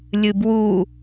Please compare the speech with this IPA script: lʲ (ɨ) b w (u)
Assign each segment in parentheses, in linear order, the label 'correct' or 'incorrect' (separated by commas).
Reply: correct, correct